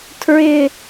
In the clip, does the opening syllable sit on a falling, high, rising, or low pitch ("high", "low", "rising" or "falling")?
low